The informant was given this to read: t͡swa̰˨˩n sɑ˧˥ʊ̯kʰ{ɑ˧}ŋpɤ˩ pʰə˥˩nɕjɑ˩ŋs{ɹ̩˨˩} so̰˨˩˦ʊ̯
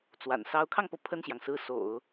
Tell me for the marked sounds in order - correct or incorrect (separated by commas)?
correct, incorrect